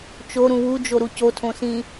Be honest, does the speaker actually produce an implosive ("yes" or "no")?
no